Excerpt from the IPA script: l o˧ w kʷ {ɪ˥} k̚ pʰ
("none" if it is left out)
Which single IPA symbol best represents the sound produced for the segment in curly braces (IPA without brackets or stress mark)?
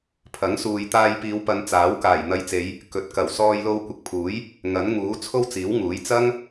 ɪ˨